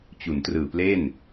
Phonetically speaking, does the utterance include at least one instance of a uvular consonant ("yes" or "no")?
no